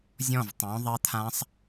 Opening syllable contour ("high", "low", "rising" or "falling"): falling